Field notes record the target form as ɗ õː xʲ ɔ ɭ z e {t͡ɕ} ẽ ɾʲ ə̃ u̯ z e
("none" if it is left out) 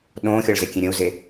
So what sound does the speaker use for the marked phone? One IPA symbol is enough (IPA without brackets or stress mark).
kʲ